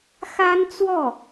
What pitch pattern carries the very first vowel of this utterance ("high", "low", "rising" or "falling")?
high